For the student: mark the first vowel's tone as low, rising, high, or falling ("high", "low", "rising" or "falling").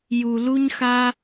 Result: low